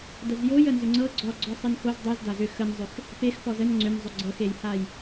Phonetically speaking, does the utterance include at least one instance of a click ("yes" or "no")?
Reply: yes